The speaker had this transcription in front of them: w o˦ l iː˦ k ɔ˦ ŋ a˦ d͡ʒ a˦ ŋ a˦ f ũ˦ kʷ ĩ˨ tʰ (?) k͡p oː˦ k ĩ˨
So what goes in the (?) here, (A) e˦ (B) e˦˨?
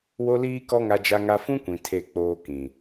B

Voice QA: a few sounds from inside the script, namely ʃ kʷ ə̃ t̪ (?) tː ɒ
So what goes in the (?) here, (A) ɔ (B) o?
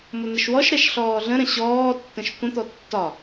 A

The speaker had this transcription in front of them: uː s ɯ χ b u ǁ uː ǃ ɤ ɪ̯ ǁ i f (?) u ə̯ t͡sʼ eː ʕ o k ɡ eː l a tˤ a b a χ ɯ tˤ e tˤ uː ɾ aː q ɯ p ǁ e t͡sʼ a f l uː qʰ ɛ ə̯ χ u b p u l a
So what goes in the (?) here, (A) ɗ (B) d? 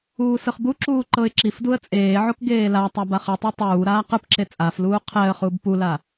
B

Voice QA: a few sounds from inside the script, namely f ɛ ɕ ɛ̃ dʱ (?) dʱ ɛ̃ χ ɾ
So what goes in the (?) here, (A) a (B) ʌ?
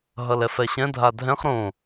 A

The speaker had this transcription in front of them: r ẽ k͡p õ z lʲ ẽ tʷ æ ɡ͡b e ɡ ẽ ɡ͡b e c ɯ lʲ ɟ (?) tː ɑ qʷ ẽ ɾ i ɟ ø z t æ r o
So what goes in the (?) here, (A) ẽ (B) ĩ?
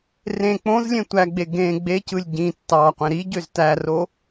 B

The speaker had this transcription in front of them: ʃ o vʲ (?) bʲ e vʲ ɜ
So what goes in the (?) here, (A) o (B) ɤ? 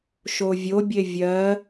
A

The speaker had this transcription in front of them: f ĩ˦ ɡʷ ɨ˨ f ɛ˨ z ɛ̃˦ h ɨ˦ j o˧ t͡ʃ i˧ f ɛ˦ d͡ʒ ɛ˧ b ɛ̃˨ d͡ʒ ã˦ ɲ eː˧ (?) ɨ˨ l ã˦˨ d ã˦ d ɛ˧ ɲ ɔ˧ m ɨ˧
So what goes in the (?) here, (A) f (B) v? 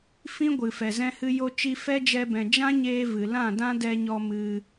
B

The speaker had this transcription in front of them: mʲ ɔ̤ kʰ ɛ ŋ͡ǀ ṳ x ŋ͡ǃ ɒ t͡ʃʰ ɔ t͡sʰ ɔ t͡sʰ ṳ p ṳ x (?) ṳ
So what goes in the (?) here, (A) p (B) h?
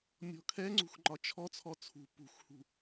B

